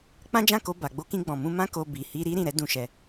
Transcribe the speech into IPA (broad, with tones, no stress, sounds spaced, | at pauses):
k͡p ã˦ d͡ʒ ã˦˨ k o˧ b a˨ ɡ͡b o˧ k ĩ˧ ɡ͡b ɔ̃˨ m ũ˧ m ã˦ k o˧ b i˨ h i˧ ɾ i˦ ɾ ĩ˦˨ ɾ ɛ˨˦ d ũ˦˨ ʃ ɛ˧